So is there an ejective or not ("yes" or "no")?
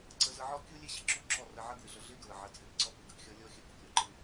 yes